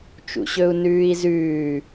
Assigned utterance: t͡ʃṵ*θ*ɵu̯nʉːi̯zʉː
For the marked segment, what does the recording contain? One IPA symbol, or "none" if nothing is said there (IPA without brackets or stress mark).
ɕ